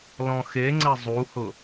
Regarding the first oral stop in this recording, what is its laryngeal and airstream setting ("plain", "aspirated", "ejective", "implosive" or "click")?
click